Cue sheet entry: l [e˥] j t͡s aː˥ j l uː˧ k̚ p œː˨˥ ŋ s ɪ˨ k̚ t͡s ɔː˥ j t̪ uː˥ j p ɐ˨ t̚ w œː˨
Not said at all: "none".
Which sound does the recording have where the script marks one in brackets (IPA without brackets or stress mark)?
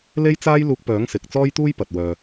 e˥